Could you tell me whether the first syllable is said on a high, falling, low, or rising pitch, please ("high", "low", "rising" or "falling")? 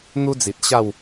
high